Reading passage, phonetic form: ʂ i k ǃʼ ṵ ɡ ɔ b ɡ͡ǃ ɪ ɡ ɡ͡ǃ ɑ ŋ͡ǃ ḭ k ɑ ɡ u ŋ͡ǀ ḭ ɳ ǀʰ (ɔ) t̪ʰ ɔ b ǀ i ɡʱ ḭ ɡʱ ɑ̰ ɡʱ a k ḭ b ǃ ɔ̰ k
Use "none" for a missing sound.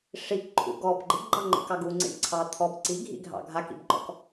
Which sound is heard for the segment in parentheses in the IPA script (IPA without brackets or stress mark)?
ɑ